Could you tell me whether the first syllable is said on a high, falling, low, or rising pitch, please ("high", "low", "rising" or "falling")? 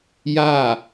falling